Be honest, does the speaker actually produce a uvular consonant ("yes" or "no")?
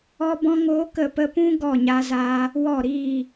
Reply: no